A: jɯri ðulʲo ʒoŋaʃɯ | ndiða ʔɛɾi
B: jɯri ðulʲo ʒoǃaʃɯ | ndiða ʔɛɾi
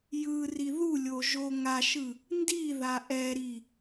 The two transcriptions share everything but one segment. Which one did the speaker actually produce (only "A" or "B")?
A